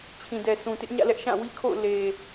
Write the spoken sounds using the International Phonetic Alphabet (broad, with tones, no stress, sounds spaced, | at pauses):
t͡ɕʰ ĩ˨ d ɛ˨ sʰ ũ˨ t ɪ˦ ʔ ɲ ä̰˦˨ l ɛ˦ ʔ ʃ ã˦˨ w i˦ kʰ o̰˦˨ ʊ̯ l e˨